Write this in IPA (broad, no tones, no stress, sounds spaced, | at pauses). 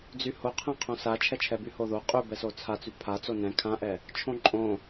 d͡z y h o qʰ ɛ̃ qʰ õ s a t͡ʃʰ ɛ t͡ʃʰ ɛ b y h o ð o qʼ y b ɛ s o t͡sʰ a t͡s y pʰ a t͡s o n ɛ̃ kʰ ã ʔ ɛ | t͡ʃʰ õ ǃʼ õ